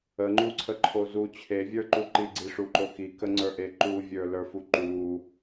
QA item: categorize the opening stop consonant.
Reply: click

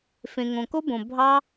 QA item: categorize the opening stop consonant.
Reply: plain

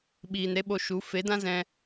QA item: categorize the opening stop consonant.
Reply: implosive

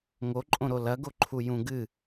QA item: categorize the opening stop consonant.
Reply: click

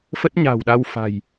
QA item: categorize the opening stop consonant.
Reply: plain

